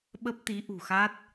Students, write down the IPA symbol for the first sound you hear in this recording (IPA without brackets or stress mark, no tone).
ɓ